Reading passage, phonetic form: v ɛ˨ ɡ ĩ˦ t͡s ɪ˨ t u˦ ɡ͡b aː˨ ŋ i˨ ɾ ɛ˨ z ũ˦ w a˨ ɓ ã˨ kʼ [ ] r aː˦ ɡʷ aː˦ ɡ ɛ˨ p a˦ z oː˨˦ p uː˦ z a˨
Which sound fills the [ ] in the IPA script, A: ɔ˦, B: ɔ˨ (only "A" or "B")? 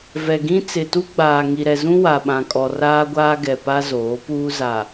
B